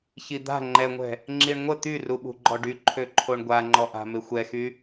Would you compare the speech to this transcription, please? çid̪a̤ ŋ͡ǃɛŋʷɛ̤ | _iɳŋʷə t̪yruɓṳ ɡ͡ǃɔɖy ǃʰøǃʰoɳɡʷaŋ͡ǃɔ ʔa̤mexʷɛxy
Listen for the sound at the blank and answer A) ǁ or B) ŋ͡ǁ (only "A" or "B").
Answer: B